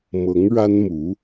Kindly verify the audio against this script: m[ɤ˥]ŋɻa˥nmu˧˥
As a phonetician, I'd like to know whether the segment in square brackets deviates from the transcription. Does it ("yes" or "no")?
yes